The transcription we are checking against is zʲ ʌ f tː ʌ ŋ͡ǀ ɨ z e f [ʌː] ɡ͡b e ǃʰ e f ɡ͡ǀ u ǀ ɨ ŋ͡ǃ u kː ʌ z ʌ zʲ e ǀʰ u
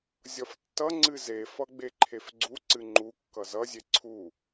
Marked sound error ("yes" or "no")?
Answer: yes